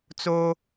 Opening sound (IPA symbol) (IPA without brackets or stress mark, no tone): t͡s